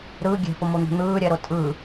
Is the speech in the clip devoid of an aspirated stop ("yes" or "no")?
yes